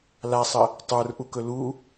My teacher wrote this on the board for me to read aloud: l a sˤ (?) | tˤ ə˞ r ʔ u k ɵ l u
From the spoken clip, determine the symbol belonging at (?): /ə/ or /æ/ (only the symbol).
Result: ə